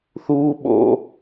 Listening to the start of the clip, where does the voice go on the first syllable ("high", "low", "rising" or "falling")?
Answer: high